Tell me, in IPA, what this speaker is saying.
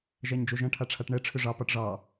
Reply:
ʒ æ ɲ d͡ʒ o ʒ ɐ̃ ʈʰ a ʈ͡ʂʰ a ʈ ɳ ɛ ʈ͡ʂʰ ʏ ʐ ɑ p ɑ ʈ ʐ ɑ

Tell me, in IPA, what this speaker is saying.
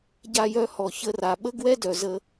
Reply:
ɟ a˧ j œ˧ h ɔ˩ ç ə˧ r a˩ ɓ ə˥ ɡ w ɛ˥ d œ˩ z ə˧

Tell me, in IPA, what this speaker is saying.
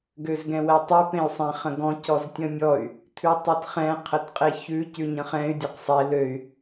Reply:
ɡ ø z ɡ ɛ̃ w ɛ tˤ ʉ p ẽ y̯ sˤ ẽ χ ə̃ ɡ ɔ̃ c ɔ z tʲ ə̃ mʲ ɔ y̯ | tʰ ʉ tˤ ɜ t χ ɛ̃ qʰ ə t qʼ e ç ʉ c ʉ ɲ ə̃ χ ɛ̃ y̯ dʲ e q sˤ e l ø y̯

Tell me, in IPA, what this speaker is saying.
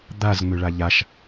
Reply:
d̪ a z ŋ͡m ø ɭ a ʎ a ʃ

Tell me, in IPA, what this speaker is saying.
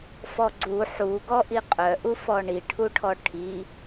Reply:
f ɔ ɡ͡ǀ u ħ u ɡ ɔ ʔ i qʼ œ ʔ u f ɔ ɳ i ʈʰ u ʈʰ ɔ ʈʰ i

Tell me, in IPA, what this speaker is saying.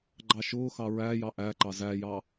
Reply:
ɡ͡ǃ ɑ ʃ ʊː x ɑ ɹ æ j ɑ ʔ æ ǃ ɑ z æ j ɑ

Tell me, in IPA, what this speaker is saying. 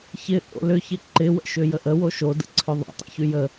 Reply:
ç ɪ ʔ o̰ l ʏ ç ɪ ǃ ɪ w ə̰ ʃ ʏ j ə ʔ ə w o ʃ o d ə̰ ǀʰ ʏ ðˤ o̰ tˤ ə̰ ç y j ə

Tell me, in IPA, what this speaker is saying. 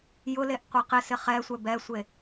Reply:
j ʊ l e ʔ qʷ i q ɪ s ɪ χ ɛ sʷ ɛ b ɛ sʷ e

